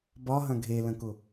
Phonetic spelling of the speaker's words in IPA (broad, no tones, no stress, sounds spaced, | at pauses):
b ɒ ɦ ɐ̃ ɡʱ e l ə̃ k ʊ